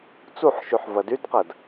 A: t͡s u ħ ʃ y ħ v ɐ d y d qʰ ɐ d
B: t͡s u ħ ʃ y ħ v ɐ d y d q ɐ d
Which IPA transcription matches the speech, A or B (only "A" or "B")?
B